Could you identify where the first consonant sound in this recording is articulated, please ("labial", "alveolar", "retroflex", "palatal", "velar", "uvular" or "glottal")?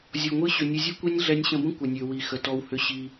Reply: alveolar